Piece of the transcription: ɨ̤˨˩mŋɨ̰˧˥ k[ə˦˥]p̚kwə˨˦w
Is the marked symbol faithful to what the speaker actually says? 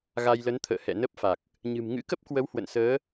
yes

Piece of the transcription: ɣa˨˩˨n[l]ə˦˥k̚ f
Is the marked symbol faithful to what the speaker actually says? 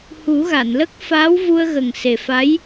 yes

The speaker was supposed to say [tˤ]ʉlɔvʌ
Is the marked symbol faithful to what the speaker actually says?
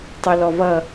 yes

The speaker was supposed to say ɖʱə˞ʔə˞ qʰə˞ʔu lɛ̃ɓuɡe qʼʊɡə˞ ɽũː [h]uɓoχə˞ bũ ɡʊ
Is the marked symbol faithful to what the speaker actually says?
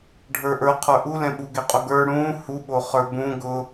yes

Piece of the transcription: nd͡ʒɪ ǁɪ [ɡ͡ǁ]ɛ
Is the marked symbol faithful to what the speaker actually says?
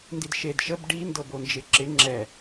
no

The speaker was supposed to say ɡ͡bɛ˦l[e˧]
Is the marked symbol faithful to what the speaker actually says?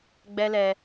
no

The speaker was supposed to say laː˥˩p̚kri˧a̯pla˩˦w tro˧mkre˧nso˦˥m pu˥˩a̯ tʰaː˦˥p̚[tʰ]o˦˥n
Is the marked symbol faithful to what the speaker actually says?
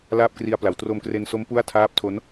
yes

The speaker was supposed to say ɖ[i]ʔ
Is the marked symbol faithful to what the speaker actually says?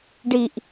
yes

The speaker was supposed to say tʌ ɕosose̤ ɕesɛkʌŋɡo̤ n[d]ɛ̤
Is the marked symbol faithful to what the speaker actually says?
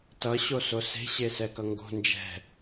no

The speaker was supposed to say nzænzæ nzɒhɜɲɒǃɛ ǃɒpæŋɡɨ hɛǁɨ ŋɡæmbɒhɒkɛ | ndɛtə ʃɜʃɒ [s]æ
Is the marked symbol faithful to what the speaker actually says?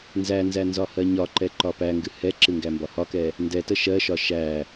no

